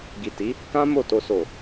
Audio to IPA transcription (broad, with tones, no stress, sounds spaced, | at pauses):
ɡ i˨ t i˨˦ | k ã˦ m o˦˨ t o˧ s o˨